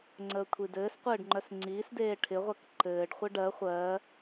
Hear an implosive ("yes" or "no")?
no